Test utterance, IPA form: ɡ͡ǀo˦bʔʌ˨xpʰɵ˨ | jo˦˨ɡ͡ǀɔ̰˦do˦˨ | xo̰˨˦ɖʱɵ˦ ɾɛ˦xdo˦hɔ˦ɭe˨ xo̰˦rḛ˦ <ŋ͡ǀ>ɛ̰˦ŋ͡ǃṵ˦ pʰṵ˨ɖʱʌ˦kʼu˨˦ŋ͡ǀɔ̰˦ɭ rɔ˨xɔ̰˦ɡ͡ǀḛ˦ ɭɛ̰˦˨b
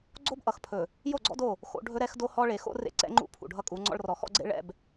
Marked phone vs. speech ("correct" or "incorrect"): incorrect